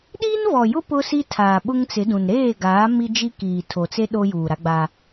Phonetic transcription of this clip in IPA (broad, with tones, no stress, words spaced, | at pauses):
ɗiː˦nvɔ˨jʊ˦ pʊ˦si˦ tʰaː˨ɓʊ˦ŋt͡sɪ˨˦dũ˨n ɾeː˦˨ɡaː˨˦ mi˦d͡ʒi˦kiː˨ tʰo˨t͡se˦ ɗo˦juː˨ɾa˦ɡ͡ba˦